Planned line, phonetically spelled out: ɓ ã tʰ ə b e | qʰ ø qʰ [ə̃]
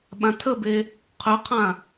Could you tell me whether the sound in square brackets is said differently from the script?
yes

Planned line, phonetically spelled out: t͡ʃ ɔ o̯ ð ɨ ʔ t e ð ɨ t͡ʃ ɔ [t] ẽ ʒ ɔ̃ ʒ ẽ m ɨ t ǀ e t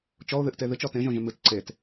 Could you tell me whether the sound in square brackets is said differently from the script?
no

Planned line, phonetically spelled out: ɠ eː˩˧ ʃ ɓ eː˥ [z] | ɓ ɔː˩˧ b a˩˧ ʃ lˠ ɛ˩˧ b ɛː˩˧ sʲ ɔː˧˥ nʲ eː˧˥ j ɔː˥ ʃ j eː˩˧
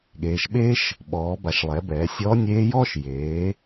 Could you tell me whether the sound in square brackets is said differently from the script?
yes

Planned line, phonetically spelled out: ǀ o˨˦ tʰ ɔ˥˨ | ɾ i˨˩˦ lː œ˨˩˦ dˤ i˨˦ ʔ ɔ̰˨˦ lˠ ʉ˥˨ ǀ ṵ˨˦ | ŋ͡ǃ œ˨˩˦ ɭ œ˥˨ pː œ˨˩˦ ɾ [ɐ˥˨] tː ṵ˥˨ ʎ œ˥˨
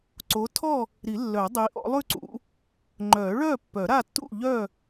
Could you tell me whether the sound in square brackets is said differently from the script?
yes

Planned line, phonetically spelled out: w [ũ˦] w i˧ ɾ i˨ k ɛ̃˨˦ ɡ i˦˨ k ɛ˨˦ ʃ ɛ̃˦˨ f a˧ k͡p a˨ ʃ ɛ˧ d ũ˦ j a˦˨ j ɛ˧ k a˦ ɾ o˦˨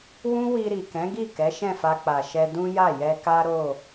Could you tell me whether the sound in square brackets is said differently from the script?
no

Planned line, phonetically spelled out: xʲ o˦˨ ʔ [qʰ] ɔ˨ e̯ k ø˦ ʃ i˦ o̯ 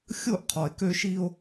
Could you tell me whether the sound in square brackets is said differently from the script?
no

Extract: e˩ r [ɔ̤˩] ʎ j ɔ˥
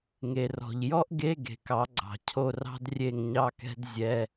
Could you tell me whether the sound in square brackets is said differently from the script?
no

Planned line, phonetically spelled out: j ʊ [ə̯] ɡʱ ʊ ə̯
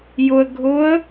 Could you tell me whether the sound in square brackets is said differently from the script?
no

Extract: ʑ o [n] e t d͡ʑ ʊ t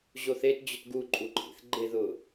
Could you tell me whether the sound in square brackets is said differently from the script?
yes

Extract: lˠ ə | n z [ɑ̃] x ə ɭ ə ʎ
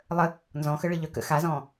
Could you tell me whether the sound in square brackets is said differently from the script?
yes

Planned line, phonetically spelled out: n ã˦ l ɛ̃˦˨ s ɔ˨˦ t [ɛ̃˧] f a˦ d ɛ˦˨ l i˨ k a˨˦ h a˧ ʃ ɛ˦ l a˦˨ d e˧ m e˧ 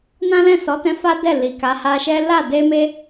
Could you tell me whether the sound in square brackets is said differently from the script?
no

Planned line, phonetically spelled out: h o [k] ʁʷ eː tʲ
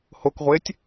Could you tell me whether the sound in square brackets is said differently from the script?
no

